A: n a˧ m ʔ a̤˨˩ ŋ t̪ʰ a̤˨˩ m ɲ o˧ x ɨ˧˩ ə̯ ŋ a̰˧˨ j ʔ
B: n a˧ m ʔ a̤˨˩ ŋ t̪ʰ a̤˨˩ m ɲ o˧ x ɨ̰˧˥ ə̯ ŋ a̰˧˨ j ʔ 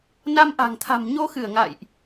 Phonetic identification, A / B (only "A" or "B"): A